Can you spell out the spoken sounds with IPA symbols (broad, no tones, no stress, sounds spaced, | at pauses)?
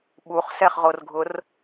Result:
ɓ u χ s ɛ χ ʁ o r ɡʱ ʊ r